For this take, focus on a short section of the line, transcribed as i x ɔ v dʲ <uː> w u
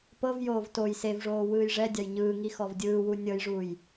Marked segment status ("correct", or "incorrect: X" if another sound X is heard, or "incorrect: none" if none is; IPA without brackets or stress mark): incorrect: ɯː